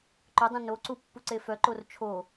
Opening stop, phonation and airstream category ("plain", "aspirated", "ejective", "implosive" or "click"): click